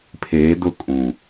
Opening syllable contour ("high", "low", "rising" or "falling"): rising